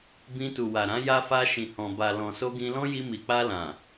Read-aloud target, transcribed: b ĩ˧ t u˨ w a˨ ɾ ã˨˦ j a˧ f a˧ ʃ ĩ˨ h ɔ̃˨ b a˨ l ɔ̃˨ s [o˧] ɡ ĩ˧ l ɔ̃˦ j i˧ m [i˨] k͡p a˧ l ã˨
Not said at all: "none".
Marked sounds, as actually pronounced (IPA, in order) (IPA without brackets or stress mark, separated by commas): o˧, i˨